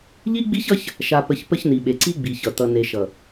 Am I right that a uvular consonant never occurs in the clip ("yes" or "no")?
yes